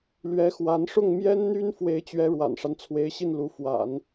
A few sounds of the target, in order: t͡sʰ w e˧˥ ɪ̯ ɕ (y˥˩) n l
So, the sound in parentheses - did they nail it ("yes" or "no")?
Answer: no